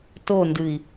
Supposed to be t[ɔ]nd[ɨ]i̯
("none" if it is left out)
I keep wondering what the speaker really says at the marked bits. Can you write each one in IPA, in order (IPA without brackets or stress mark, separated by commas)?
o, ɨ